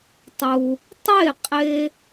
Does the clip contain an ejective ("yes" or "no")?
yes